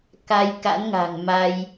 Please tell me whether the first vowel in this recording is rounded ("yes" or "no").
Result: no